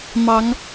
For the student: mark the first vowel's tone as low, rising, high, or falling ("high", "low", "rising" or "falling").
rising